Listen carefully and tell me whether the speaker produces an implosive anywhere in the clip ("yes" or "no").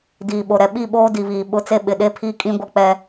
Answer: yes